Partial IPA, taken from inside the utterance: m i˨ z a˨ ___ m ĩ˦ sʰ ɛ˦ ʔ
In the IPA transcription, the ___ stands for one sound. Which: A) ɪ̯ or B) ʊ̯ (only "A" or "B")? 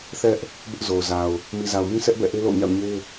B